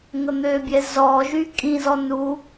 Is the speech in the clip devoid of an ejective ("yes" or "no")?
no